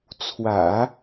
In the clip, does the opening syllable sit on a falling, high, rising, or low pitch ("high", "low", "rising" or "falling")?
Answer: low